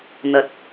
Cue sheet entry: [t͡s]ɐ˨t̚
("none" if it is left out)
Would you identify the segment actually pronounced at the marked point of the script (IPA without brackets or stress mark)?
n̪